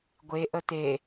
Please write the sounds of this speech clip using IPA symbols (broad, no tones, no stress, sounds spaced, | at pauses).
ɡʷ e ʔ ə t̪ e